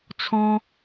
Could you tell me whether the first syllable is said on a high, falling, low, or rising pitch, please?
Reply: high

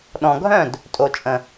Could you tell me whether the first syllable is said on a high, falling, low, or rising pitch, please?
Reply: low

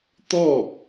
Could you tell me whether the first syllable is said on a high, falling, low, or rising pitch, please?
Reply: falling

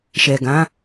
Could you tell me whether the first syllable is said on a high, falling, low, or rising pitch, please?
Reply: low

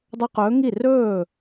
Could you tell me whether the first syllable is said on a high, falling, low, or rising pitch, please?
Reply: high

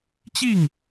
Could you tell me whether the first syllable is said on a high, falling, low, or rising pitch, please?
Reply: falling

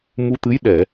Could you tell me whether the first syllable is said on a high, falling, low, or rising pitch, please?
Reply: rising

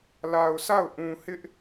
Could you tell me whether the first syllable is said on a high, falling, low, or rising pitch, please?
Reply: low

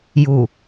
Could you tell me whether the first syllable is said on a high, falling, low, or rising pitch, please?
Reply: low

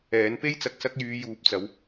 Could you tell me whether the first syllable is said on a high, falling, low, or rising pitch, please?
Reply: rising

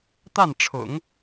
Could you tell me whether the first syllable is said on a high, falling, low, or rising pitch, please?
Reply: falling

